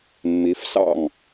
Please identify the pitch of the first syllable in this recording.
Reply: rising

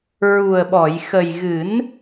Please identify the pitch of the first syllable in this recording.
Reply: low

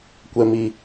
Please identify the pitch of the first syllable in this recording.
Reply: low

